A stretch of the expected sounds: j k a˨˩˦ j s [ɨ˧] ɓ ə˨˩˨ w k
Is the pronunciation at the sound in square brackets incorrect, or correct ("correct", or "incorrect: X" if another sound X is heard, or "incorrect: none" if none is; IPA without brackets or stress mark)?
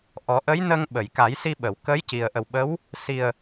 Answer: incorrect: i˧